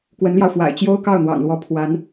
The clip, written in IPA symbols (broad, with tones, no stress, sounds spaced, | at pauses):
k w ə˧˥ n l j ɑ˧ ʊ̯ f w a̰˨˩ ɪ̯ t͡ɕ j o˥ ʊ̯ k ɑ˥˩ ʊ̯ n̪ w ɑ̰˨˩ ŋ l w ɔ˧˥ pʰ w a˧˥ n